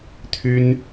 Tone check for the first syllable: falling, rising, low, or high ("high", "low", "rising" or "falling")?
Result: high